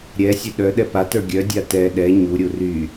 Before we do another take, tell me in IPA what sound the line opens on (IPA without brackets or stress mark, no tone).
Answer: ɾʲ